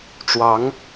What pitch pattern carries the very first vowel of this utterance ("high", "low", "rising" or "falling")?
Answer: rising